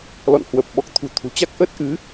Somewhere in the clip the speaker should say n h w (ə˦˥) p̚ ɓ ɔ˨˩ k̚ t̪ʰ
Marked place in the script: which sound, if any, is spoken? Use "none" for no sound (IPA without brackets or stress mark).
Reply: ə˨˩